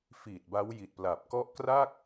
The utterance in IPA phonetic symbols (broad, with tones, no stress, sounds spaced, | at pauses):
f iː˨˩ t̚ b a˦˥ w j i˨˩ t̚ p l a˨˩ p̚ k ɔ˦˥ ʔ k r a˥˩ k̚